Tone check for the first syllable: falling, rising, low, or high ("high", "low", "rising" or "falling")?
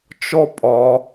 high